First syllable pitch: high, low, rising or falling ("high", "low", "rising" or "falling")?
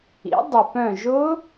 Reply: rising